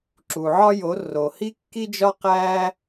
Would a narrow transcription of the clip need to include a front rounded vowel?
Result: no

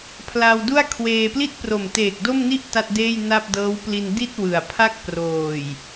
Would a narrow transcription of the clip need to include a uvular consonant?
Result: no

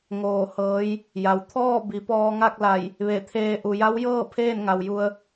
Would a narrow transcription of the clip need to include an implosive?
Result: no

